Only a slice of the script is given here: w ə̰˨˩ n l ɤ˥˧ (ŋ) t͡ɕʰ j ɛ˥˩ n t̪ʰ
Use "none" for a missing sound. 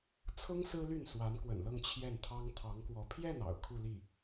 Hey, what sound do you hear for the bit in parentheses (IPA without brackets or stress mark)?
ŋ